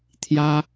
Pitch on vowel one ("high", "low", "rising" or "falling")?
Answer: high